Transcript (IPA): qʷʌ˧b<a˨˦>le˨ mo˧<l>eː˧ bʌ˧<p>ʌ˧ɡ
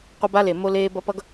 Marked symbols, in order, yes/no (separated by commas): no, yes, yes